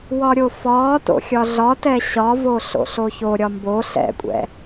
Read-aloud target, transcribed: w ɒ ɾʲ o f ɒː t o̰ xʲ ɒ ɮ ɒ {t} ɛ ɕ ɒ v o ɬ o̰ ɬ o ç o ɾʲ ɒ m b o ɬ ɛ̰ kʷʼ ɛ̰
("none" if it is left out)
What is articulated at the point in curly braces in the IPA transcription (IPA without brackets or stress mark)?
t